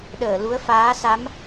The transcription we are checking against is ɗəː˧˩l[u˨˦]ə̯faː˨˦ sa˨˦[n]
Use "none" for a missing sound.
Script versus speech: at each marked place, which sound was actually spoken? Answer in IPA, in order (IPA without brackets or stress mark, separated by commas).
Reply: u˨˦, m